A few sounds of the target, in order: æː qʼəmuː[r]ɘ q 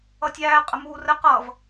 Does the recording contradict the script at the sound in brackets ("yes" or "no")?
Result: no